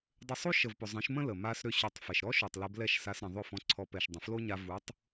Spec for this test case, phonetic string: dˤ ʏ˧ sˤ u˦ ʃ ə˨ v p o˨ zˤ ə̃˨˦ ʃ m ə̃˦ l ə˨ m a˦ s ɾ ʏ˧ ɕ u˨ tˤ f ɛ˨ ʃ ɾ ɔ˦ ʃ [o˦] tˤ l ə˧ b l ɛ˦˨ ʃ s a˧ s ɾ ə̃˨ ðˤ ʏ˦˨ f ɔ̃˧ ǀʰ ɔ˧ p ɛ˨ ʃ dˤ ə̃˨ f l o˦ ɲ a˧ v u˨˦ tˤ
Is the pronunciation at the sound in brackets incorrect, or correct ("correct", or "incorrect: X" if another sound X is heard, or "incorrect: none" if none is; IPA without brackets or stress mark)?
incorrect: o˨